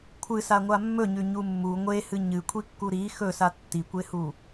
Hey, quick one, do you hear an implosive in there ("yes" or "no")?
no